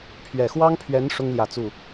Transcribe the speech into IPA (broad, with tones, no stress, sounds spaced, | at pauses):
pʰ ɥ ɛ˨˩ x w ɑ˥ ŋ pʰ ɥ ɛ˧˥ n ʂ ʊ˥ ŋ l j ä˨˩ t͡s u˥˩